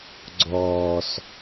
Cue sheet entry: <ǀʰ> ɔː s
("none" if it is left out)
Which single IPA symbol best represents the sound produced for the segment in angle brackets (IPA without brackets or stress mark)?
ɡ͡ǀ